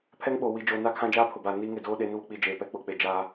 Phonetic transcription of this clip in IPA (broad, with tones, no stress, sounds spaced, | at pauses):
pʰ ɛ˦ ŋ ɓ oː˨ w i˨ d͡ʒ oː˨ n a˦˨ kʰ ã˦ d͡ʒ aː˦ pʰ ʊ˨ b aː˨ n iː˦ ŋ ɪ˦˨ d oː˦ ɗ e˨˦ n β ʊ˨ k͡p i˦˨ d͡ʒ eː˨ p ɛ˨ k͡p ʊ˨ k͡p e˨ d͡ʒ aː˦